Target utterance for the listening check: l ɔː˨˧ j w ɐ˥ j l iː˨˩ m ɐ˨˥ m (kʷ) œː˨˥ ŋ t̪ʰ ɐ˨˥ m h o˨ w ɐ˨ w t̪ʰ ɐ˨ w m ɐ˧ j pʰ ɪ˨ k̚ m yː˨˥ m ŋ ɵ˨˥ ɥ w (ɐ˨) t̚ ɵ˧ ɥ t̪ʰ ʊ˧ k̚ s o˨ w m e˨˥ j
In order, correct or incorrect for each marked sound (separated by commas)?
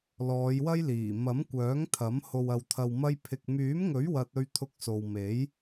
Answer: correct, incorrect